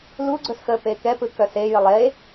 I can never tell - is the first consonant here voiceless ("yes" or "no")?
no